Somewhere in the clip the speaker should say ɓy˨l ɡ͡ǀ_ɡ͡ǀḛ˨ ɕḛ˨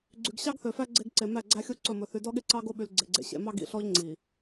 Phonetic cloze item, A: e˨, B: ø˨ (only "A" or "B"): A